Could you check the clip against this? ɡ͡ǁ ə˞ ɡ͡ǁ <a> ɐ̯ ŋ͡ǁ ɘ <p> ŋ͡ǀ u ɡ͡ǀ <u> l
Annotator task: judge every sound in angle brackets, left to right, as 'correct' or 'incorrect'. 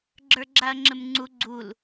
correct, incorrect: m, correct

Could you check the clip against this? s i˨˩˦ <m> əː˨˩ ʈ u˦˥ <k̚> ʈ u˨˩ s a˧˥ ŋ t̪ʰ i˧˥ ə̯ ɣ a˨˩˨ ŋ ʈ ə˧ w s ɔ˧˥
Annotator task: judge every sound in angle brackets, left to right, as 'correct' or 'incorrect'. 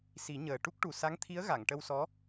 incorrect: ɲ, correct

